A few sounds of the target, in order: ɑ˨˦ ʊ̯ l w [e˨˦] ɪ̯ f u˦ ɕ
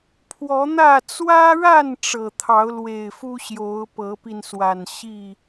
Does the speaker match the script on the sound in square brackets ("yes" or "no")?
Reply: no